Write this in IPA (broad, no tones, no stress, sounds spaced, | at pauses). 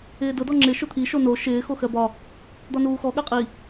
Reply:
ɪː d ʊ d ɔ ŋ͡ǁ ɪ ʃ ʊ t̪ʰ i ʃ o n o ʃ ɪː x o x ɜ b ɒ | d̪ ɒ n uː x ɔ ɠ ɜ qʼ i